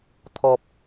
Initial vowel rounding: rounded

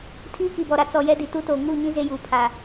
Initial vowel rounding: unrounded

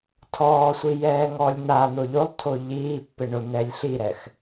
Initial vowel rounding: rounded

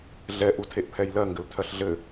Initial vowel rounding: unrounded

